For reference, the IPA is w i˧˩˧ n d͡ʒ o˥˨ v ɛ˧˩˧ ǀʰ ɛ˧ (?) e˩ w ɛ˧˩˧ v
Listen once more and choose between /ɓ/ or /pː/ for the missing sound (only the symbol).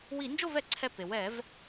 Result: pː